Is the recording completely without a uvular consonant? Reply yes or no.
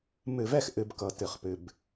no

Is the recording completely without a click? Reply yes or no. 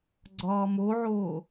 no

